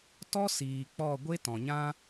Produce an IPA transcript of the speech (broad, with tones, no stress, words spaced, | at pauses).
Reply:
tɔ˦ siː˨k͡pɔ˦˨ ɡʷe˦ tɔ̃˨ɲã˦